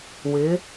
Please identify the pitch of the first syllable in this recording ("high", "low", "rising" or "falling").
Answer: rising